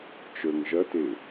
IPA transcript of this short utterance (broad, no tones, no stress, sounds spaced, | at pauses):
t͡ʃ ə˞ ŋ ʒ ɐ t e